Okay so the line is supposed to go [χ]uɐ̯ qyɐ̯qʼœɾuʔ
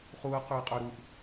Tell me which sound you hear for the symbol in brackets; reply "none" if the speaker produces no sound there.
χ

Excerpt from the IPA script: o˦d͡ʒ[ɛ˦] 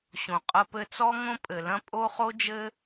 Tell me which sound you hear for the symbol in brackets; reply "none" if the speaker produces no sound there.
ɘ˦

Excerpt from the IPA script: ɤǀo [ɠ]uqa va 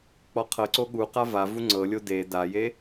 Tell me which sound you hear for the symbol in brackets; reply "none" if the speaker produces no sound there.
ɠ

